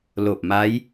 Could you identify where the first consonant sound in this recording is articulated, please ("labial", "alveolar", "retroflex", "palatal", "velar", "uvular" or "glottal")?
alveolar